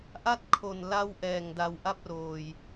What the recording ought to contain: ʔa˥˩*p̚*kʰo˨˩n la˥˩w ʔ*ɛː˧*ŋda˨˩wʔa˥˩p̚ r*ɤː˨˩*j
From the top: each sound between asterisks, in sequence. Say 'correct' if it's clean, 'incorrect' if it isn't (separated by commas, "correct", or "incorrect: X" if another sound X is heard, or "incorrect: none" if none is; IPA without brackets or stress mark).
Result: incorrect: t̚, incorrect: ɛː˨˩, incorrect: oː˨˩